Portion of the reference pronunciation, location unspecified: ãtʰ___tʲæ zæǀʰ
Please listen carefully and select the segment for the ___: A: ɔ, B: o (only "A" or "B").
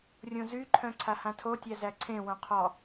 B